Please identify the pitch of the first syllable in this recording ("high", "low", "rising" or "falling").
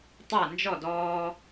falling